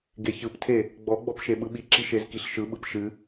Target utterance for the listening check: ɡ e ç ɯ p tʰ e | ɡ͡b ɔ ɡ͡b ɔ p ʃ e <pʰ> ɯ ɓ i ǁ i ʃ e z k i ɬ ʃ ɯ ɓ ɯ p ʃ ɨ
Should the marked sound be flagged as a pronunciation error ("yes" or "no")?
yes